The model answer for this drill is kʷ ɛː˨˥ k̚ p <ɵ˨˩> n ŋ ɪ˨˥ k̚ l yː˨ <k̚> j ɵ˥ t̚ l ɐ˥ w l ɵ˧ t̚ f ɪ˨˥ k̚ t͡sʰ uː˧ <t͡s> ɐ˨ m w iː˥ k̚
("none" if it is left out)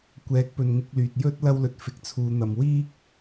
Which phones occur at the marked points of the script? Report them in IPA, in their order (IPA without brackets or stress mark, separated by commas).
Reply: ɵ˨, t̚, n̪